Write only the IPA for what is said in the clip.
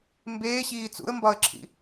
mbeːɕiː t͡sṵə̯mbɒə̯ǁʰḭ

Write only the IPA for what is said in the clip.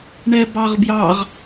ɳɛbɑʁbjɑʁ

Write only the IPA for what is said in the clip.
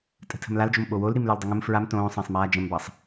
tʼə̤tʰə̤mlald͡ʒom ɓowol ɾimlə˞ldˤəŋə̃m fɹam tõːsˤə̃ːsˤmaː d͡ʒə̃mbɑsˤ

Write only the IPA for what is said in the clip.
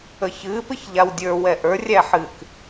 əçɨ pɨçʎawdʲə˞ wɛʔə˞ rʲæħɨk

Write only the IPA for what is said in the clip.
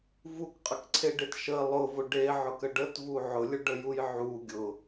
vukqʼəkǀʰeɖet ʃə lˠʊvʊ ɖeʕʊkə ɖətvu ʕʊlʲʊɖəjuj ʕu ɡʲʊ

